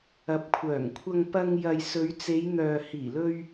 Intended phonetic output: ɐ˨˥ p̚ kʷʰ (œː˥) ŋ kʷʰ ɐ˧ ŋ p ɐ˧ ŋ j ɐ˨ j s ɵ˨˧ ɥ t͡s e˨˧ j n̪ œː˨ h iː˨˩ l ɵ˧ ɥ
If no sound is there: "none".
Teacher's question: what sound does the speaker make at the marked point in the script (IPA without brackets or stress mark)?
œː˨˩